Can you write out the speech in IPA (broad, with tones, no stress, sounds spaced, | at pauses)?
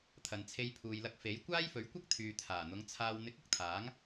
t̪ʰ ɐ˨ n t͡sʰ e˧ j pʰ uː˨ j l ɐ˧ k̚ f e˨˥ j kʷ aː˥ j f ɵ˨˥ ɥ kʷ ɐ˥ k̚ t̪ʰ yː˨ t̪ʰ aː˨˩ n̪ ʊ˨˧ ŋ t͡sʰ aː˨ w n̪ ɪ˨˥ k̚ ʊ˨ k̚ t̪ʰ aː˨˥ ŋ